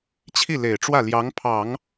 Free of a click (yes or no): yes